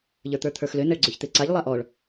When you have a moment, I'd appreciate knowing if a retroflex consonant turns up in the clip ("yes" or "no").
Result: yes